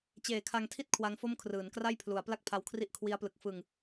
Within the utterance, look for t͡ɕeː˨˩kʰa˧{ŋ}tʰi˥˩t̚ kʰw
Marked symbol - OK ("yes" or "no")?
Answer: yes